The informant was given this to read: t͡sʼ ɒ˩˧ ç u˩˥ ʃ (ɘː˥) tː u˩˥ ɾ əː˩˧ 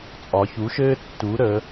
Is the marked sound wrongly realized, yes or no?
no